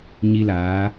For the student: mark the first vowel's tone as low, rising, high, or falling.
high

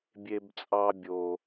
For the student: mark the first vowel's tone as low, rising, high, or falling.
high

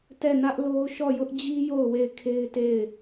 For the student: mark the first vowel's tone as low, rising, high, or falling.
falling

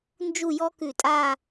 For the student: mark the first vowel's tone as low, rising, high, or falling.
falling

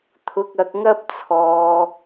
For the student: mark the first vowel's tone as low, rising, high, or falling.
low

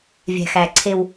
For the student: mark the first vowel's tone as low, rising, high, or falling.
low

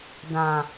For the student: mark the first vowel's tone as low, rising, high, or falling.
low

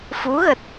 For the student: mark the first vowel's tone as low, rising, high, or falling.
rising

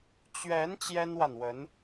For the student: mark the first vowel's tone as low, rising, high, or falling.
rising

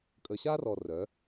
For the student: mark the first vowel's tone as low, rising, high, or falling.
low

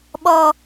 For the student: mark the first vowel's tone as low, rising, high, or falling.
high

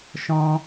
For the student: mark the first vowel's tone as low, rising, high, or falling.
high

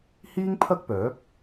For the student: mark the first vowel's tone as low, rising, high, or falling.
high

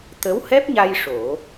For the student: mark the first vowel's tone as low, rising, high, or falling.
rising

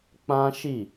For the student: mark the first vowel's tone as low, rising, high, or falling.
high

